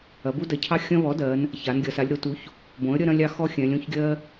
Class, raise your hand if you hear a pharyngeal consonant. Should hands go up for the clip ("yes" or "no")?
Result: no